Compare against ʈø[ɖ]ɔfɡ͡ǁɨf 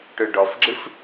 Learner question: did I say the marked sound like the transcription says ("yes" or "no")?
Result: yes